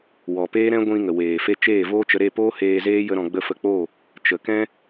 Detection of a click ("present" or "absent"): absent